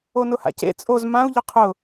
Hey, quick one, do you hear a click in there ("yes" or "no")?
no